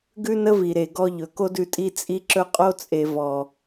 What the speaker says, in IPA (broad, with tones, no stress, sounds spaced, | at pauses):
ɡ ʉ˦ n ə˦ v i˨ ɾ e˨ ɡ ɔ˧ ʎ ɵ˨ k o˦ d ʉ˧ tʼ i˦˨ t͡sʼ i˦ ǁ ɵ˦ qʼ o˦ t͡sʼ e˨ v ɔ˨